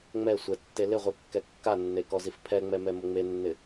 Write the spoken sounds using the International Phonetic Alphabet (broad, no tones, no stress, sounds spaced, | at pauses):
ŋ͡m ɛ sʷ ɛ tː e l ɪ ʁʷ i kː ɛ kː a nː e k ɔ z i f pʰ ɛ ŋ͡m ɛ m ɛ m ʊ ŋ͡m e nː ɪ